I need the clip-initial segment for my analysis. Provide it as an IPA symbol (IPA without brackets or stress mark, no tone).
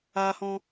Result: aː